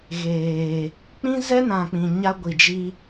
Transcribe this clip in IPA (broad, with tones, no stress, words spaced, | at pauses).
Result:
ɣeː˨ | k͡pĩ˦zɛ˦nã˨k͡pĩ˨ ɲa˦ɡʷi˨d͡ʒi˦